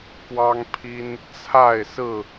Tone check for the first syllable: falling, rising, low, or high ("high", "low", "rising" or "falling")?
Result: high